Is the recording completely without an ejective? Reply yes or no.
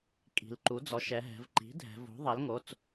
no